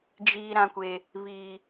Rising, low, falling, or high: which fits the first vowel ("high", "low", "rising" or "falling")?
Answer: high